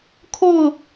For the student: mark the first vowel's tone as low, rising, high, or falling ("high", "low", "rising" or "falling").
falling